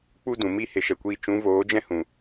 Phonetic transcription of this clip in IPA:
k͡pu˦dũ˨mi˦ he˨ʃɛ˨kʷiː˧ t͡ʃũ˨˦voː˨˦ d͡ʒɛ̃˦hũ˨

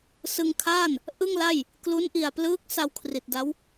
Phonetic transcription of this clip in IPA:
sɯ˧ŋkʰaː˥˩n | ʔɯ˥˩ŋla˥˩j | klu˦˥nʔi˨˩a̯plɯː˦˥k̚ sa˧wkʰri˨˩t̚da˦˥w

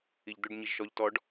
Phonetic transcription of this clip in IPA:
iʎd̪ɵɖ ɲiʒʃɔʎ tɔɖ

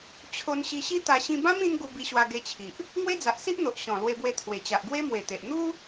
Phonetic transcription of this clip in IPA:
t͡ɕʰo˧n ɕi˧ɕi˦t̪a˧ ɕĩ˧bã˦m ĩ˦n ɡu˧bi˧ɕwa˧ ɡe˧t͡ɕʰi˨ʔ | ŋwe˦d͡za˨ʔsi˦ʔn̪o˨ʔ ɕɔ̃˨˩ lwe˧bwe˧t̪ʰwe˨˩ t͡ɕa˨ʔɡwe˦mwe˨˩t̪e˨ʔ n̪u˦

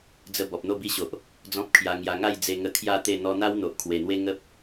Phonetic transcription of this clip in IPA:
d͡zə˦ bɔ˨p̚n̪o˥˧bi˦ɕo˨ʔ | d͡zɔ̃˦p̚kʰja˧ ŋja˧ ŋa˥˧jd͡ze˧ ŋə˧kʰja˥˧ t̪e˥˧ n̪ɔ˧n̪a˦w n̪o˨ʔkʰwe˨˩n̪we˦ ŋə˦p̚

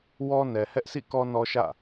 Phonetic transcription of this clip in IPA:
wɔ˦nɛ˨ hɛ˦ʔsʰḭ˦˨kɔ˦ nɔ˦ʃä̰˦˨

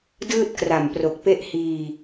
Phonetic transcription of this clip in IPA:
dɯː˥˩t̚kra˨˩mpro˨˩k̚pe˥˩ʔ hiː˧

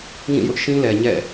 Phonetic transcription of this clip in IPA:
ŋĩ˦˨jʊ˦ʔʃĩ˦lɛ˨ ɲɛ̰˦˨

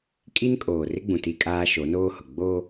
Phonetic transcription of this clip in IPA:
kʼi˦nkʼoː˨ rɪ˦ɡ͡bũ˨ ti˦kʼaː˦ ʃo˨˦noː˦hʊ˨ ɡ͡boː˦

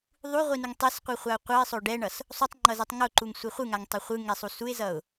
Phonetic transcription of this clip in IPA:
ðˤuʁʷinuŋ tˤesqʷɯχʷaʊ̯ qʷʌɪ̯sˤo ɖɛɳʌs | sˤutˤŋ͡ǃʌzɛtˤ ŋoǃuŋsʷi χʷɯŋaŋtˤɛ χʷɯŋɛsˤu suɪ̯zʌʊ̯

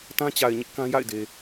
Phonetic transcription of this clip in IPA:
tã˦t͡ɕa˨ɪ̯ɲɪ˦ʔ kã˦ ja̰˦˨ɪ̯de˨

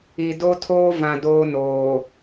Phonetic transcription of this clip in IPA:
i˨ do˦tʰoː˦ vã˨ doː˦noː˨

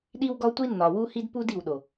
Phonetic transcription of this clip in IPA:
ɗi˦wɡɒ˦tʷi˦nːɒ˨ wu˦hi˦dpu˦d i˨wɗo˨

